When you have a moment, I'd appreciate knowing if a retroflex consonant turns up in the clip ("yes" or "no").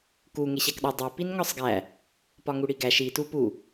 yes